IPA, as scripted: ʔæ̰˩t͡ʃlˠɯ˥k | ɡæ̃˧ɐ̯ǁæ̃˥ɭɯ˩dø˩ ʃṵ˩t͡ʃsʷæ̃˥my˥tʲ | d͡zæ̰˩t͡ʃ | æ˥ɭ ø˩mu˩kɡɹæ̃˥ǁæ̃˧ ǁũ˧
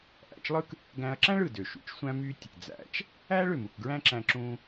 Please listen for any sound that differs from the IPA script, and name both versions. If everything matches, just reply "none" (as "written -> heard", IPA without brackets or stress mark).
none